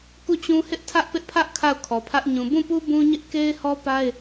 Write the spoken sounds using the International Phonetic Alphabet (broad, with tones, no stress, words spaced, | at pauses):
ku˦˨t͡ɕũ˦ hɪ˦ʔtʰä˦ʔpɪ˦ʔpʰä˦ʔ kʰa˦˨ʊ̯kʰɔ˨pʰä˦ʔ ɲũ˨ bũ˦˨pu˦ bũ˦ɲɪ˦ʔ ke˦ɪ̯hɔ˦pa˦ɪ̯